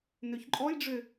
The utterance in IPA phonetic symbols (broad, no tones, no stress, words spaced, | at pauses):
nøçǃʼɔjɖ͡ʐø